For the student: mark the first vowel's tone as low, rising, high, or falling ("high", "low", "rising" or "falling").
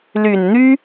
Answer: low